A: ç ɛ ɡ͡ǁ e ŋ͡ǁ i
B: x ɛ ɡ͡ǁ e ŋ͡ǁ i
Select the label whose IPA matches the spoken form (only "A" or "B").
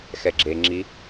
B